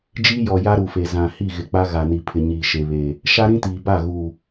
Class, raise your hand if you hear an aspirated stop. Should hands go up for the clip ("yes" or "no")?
yes